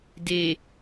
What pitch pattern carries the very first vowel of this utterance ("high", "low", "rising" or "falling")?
low